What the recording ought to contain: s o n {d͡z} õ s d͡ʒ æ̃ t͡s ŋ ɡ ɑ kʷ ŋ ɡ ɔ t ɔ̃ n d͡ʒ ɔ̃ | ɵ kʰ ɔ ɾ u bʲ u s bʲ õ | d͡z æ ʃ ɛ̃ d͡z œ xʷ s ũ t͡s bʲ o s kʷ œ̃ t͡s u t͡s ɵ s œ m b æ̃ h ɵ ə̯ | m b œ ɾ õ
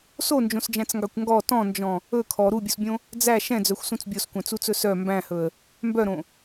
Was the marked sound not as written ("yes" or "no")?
yes